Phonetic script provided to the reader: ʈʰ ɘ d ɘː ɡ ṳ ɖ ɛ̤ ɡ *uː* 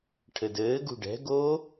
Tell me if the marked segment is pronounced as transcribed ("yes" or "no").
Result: no